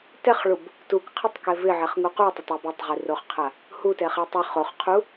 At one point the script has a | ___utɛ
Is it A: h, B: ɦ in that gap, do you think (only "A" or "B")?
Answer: A